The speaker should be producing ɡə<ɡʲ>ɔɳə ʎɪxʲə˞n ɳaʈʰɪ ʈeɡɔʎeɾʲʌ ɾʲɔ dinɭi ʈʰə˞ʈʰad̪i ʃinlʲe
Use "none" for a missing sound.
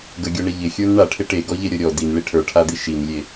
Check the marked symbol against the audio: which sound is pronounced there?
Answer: ɡʲ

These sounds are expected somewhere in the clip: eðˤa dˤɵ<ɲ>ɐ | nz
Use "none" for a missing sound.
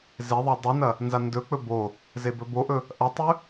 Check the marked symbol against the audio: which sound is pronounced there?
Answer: n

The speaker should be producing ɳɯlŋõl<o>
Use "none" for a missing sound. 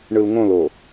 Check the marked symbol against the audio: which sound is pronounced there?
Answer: o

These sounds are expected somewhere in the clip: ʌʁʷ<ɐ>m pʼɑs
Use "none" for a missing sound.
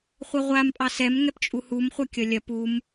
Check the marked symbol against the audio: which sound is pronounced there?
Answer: a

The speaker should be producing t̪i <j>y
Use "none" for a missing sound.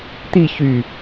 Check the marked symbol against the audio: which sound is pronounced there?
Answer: ç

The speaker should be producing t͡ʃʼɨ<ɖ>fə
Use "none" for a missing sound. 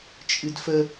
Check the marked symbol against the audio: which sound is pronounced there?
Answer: d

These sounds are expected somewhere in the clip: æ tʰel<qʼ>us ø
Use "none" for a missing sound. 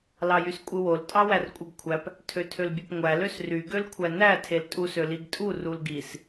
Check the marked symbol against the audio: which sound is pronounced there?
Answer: tʼ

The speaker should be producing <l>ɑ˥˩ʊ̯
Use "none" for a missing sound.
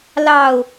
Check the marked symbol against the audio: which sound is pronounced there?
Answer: l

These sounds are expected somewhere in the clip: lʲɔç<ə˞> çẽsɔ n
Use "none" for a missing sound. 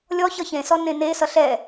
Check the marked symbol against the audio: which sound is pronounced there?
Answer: ʌ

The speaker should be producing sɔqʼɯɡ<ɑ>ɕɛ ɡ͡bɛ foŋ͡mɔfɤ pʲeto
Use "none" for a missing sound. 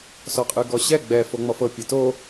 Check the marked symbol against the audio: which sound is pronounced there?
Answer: ɔ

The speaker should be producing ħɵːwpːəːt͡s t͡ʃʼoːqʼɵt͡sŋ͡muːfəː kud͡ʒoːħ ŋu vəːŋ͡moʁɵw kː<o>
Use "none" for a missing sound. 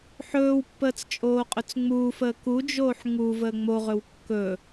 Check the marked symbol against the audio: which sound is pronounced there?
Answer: ɵ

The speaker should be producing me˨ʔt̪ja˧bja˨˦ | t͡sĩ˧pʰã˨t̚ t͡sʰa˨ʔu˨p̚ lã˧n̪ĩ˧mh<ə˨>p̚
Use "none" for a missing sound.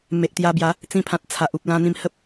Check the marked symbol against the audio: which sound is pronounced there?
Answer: ə˦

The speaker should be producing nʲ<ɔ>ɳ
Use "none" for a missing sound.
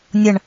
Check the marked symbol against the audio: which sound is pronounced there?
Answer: ʌ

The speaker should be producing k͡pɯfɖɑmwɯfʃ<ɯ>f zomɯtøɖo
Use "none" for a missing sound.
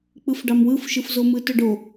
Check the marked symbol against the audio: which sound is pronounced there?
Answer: ɯ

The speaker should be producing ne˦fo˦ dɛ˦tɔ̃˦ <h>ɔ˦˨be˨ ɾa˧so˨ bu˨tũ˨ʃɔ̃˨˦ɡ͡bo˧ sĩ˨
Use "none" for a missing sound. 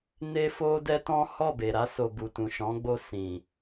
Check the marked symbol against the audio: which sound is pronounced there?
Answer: h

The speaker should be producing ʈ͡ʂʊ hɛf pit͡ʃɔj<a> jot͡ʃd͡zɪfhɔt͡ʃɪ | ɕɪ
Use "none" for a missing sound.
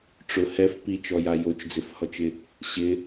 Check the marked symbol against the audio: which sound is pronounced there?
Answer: a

